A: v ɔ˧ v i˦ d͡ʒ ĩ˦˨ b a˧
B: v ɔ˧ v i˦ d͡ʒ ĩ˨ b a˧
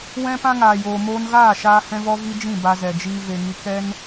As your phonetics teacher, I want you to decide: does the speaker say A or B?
A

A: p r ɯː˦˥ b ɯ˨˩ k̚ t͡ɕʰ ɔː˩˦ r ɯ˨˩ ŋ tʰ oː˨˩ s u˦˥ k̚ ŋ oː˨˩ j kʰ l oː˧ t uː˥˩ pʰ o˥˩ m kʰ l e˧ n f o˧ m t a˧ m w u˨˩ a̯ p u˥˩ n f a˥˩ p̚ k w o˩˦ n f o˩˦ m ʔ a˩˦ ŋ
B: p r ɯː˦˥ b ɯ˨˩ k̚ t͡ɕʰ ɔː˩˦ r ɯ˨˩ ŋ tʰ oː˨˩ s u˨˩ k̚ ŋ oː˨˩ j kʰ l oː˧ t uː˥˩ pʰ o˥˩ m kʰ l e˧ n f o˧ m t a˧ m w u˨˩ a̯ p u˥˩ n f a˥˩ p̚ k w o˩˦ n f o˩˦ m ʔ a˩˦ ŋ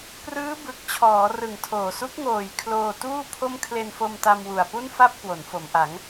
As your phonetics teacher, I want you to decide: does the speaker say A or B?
A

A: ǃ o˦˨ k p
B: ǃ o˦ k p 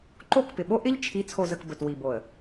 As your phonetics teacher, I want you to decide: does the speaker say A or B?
A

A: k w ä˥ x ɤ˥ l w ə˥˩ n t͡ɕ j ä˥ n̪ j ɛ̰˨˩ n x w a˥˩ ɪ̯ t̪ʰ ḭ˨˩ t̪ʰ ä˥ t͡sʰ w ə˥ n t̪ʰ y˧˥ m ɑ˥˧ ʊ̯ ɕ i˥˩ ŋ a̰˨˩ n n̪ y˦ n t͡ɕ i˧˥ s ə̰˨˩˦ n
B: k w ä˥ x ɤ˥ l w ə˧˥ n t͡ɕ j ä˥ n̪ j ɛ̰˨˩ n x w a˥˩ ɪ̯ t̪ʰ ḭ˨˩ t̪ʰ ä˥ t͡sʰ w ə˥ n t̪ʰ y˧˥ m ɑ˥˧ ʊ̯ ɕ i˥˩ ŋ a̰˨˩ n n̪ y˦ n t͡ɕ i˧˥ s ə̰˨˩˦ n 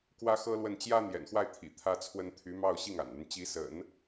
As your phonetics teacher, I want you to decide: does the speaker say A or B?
A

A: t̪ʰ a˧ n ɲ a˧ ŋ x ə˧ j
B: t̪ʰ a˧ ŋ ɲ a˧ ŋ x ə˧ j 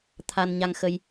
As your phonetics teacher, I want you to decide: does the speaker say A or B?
A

